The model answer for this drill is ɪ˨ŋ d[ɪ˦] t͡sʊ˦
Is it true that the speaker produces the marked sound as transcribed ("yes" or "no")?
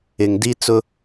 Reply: no